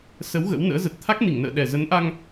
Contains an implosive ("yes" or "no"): yes